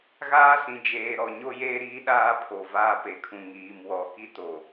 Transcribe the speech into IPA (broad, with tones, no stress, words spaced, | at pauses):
ɣaː˦sĩ˨ d͡ʒeː˨ ɾɔ˨ ɲo˦jeː˦ɾiː˦ɗaː˦ pʰo˨vaː˦ pe˨kʰũ˨ ŋiː˨mwɔ˨˦ki˦ to˨